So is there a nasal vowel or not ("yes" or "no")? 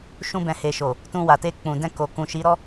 yes